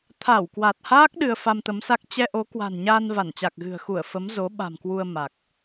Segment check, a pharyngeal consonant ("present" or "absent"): absent